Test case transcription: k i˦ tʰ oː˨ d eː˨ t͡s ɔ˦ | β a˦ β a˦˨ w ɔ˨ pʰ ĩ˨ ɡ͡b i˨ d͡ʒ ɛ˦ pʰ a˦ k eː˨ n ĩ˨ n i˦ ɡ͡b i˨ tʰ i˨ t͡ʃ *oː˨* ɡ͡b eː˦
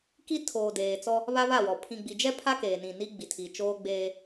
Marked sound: incorrect: oː˦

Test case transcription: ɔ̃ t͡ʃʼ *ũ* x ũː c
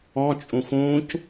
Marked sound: correct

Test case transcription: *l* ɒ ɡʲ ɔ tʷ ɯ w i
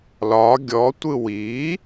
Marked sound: correct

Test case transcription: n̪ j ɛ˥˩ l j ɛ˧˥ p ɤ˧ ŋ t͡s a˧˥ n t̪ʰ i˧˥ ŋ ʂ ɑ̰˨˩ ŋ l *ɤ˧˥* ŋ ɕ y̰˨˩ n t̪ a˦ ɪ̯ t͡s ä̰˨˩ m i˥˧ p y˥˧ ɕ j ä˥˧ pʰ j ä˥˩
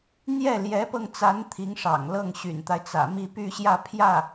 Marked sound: incorrect: ɤ˥˩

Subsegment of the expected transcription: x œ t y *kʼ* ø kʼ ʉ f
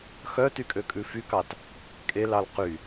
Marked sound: correct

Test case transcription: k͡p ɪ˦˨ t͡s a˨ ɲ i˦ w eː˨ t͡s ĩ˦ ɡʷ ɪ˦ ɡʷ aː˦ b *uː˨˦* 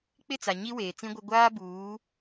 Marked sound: correct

